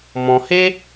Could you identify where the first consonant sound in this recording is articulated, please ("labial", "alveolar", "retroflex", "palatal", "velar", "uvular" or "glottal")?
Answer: labial